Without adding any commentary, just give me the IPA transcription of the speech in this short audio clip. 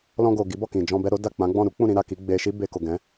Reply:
l ɔ̃˧ ɡ o˨ ɡ i˨˦ b ɔ˦˨ k ĩ˨ d͡ʒ ɔ̃˧ b ɛ˧ ɾ o˦ d a˦˨ k͡p ã˨˦ ɡ͡b ɔ̃˦˨ ɾ u˨˦ k͡p ũ˦˨ ɾ ĩ˧ ɾ a˨ k i˨˦ ɡ͡b e˧ ʃ i˦ b e˧ k o˨ ɡ ɛ̃˨˦

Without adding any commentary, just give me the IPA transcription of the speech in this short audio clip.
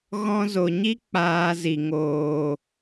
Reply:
ɣ ɔ̃˧ z o˨ ɲ i˦ k͡p aː˧ z i˨ ŋ oː˨

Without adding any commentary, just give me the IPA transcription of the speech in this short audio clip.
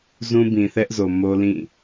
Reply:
z ũ˦ b ĩ˨ θ ɛ˦ ʔ z o˨ m o˦ l ĩ˦˨

